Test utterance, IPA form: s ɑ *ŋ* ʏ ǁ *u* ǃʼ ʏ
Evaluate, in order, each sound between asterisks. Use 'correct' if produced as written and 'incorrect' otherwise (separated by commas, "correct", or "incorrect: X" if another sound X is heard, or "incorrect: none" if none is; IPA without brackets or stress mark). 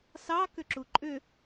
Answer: incorrect: k, correct